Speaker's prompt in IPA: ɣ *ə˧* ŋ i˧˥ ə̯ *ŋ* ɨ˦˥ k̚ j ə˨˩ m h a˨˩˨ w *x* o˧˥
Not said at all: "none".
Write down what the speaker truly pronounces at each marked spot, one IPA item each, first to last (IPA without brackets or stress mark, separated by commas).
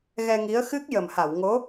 ɛ˧, x, ŋ